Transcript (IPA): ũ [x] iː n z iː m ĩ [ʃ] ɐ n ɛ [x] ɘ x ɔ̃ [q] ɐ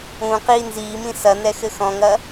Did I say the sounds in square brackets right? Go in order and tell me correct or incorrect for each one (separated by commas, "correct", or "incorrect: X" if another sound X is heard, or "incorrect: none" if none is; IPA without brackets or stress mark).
incorrect: q, incorrect: s, correct, incorrect: ŋ